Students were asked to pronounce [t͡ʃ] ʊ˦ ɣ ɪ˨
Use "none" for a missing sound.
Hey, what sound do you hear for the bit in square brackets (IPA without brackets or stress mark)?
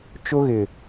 t͡ʃ